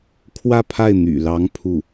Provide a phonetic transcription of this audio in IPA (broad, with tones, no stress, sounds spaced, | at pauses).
kʰ w ä˥˧ pʰ a˥˩ ɪ̯ n̪ y̰˨˩ l ɑ˧˥ ŋ pʰ u˥˩